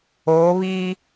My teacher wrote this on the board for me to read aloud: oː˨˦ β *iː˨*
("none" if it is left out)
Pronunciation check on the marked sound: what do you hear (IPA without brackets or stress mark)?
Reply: iː˦